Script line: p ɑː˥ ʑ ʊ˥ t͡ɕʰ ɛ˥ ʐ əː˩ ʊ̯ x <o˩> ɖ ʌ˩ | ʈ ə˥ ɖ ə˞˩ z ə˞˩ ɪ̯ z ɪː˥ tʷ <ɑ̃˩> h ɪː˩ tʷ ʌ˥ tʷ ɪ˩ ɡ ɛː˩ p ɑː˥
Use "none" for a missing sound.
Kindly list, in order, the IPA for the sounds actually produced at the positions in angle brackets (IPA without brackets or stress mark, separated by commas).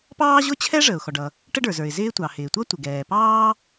ɔ˩, ɑ˩